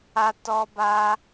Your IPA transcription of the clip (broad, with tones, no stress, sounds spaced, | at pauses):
a˧ t ɔ˧ b a˧